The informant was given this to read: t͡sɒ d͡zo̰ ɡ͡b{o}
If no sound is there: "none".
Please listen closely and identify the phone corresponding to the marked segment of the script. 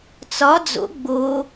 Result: o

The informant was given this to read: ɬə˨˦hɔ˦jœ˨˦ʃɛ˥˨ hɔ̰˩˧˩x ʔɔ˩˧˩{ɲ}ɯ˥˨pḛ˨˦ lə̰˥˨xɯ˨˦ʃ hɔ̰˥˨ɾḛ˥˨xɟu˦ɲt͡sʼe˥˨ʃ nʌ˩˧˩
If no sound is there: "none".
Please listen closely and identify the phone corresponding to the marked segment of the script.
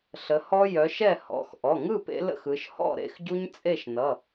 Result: ŋ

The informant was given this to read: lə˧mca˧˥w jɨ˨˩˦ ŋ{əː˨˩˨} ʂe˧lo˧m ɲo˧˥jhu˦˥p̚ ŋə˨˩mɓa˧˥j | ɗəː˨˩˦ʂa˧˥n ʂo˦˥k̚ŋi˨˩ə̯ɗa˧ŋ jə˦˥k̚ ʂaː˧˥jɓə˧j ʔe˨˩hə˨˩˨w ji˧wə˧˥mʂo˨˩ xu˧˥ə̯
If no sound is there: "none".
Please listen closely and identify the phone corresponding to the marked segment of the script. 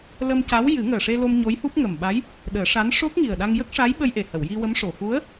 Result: əː˨˩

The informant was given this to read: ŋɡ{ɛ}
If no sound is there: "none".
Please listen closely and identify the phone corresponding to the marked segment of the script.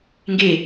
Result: e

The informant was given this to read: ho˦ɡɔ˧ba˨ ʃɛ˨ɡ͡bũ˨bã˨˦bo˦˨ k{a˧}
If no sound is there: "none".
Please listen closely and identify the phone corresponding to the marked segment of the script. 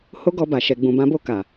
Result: a˨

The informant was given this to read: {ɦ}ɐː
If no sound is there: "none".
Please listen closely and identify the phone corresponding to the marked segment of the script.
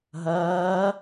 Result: ɦ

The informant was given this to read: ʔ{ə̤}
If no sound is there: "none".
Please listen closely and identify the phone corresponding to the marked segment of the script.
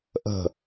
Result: ə̤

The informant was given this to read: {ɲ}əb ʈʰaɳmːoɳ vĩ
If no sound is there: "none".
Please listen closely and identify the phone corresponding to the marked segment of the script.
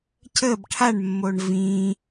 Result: c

